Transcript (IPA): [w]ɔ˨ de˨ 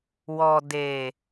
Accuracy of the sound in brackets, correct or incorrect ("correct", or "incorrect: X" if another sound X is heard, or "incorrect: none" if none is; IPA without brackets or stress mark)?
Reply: correct